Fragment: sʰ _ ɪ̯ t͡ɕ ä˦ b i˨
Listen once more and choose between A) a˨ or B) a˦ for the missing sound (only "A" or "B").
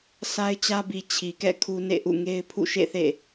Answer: B